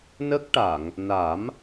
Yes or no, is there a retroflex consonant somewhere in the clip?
yes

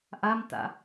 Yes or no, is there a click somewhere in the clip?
no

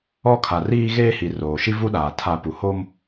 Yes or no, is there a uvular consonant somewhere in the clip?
no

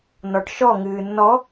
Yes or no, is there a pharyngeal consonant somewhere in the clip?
no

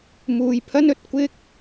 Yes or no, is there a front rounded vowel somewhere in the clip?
no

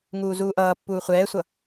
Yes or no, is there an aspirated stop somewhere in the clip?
no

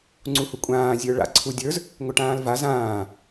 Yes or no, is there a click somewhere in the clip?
yes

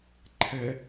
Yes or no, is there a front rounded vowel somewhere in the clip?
no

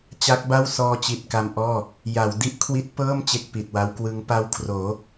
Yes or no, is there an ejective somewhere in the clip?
no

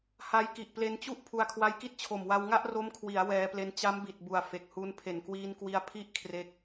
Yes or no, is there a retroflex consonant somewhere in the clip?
no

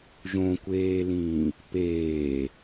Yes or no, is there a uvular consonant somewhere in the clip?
no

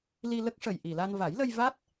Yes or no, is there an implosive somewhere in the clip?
no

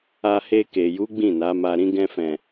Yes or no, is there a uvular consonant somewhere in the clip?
no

